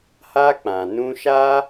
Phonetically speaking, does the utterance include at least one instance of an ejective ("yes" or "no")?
no